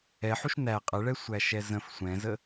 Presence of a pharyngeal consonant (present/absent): present